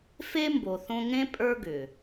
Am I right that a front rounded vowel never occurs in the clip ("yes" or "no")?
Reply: no